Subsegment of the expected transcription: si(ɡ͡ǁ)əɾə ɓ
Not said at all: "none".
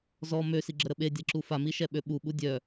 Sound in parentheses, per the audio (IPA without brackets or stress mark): ɡ͡ǁ